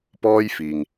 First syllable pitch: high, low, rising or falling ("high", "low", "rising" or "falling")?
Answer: high